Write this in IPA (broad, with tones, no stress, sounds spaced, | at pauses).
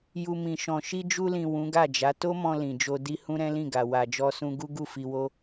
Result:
j u˨ m ĩ˨ ʃ ɔ̃˨ ʃ i˧ d͡ʒ u˧ l ĩ˨ w ũ˨˦ ɡ a˦˨ d͡ʒ a˨˦ t o˦ m ɔ̃˧ l ĩ˨ d͡ʒ o˧ d i˦ h ũ˦ ɾ ɛ̃˦ l ĩ˦˨ ɡ a˨ w a˨ d͡ʒ ɔ˧ s ũ˧ ɡ u˦ ɡ u˦˨ f i˧ w o˦